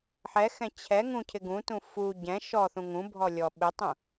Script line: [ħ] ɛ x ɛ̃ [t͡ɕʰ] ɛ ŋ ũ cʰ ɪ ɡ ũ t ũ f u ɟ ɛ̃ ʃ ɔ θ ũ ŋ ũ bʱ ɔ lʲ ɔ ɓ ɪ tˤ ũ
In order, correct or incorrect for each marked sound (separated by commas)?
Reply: correct, correct